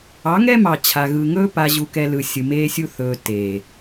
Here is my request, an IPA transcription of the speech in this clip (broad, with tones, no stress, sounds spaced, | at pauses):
ɑ˨˦ ŋ ɛ˦ m ɑ˨ t͡ɕʰ a˨ ɣ ɯ˨ ŋ ɵː˦ p a˨ ʑ u˨ k ɛ˨ l ɯ˨ sʲ ɯ˨ m eː˦ sʲ u˦ θ ɵː˨ t e˨